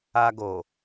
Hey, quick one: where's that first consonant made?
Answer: velum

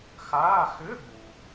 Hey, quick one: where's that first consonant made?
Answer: velum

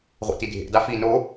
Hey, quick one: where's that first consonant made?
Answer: uvula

